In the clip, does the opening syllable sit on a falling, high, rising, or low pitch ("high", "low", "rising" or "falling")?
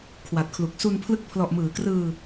low